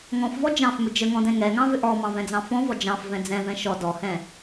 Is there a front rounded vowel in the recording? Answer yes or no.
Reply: yes